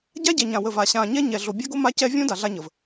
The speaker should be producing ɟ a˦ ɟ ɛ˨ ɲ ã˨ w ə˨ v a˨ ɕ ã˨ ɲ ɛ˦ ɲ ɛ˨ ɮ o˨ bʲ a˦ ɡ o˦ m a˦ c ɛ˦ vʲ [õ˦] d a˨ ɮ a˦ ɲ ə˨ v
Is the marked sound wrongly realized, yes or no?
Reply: no